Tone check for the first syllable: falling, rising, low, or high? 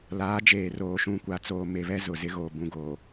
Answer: rising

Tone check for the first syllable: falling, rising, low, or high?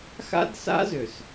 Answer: high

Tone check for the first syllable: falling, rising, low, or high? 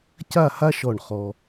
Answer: falling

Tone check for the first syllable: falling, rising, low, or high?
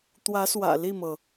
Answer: rising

